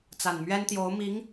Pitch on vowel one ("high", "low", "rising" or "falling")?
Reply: low